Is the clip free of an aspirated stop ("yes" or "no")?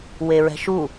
yes